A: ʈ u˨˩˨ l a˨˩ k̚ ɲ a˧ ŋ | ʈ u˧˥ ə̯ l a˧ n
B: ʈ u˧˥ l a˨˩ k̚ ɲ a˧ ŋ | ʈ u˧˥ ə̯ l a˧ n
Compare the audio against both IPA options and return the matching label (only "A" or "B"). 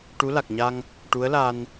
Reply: B